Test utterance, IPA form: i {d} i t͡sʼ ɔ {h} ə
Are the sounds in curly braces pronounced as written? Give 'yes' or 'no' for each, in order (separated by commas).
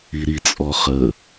no, no